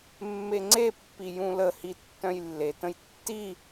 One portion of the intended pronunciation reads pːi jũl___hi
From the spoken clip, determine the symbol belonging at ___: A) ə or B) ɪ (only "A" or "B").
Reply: A